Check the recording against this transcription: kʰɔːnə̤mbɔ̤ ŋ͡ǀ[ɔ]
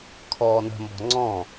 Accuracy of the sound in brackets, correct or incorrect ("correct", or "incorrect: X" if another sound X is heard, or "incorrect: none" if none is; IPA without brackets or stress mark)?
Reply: incorrect: ɔ̃